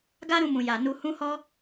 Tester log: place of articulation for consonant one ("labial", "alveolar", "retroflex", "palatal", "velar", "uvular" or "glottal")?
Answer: velar